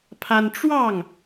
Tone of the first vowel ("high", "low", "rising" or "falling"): high